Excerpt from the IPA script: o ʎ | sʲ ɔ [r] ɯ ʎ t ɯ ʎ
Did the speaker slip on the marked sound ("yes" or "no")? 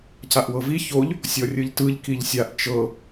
yes